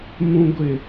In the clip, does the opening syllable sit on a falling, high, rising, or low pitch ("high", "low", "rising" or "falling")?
low